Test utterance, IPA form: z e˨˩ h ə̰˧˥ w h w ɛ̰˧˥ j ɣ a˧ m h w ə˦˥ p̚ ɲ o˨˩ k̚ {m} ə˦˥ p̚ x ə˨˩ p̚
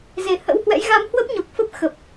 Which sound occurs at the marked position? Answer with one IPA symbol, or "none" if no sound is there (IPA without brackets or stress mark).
f